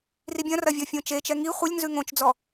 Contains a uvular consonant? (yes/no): yes